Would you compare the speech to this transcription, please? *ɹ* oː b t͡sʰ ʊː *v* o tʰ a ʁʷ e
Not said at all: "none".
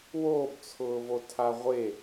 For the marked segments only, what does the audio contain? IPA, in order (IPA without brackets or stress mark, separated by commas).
w, v